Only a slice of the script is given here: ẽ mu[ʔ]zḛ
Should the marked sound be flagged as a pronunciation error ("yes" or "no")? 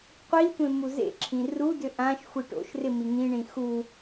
yes